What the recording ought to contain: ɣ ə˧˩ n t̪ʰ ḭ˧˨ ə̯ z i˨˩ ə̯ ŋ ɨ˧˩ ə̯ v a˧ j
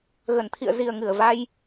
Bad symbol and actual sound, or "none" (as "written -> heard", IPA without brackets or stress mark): none